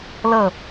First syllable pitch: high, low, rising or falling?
falling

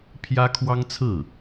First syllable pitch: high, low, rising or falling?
high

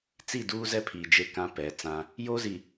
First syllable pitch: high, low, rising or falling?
falling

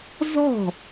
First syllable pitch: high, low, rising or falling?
falling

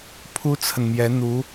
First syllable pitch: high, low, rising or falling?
high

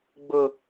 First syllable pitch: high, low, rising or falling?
low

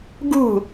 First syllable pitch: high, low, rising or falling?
falling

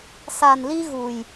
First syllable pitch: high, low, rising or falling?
low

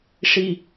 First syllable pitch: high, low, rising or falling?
low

